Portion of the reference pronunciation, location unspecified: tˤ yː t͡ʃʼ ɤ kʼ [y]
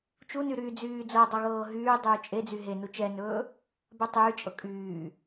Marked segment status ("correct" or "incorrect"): incorrect